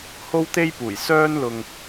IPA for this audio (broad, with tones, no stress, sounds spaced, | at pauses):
h o˥ w t̪ e˥ j p uː˨˩ j s œː˥ n l ʊ˧ ŋ